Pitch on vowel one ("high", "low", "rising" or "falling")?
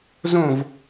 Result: falling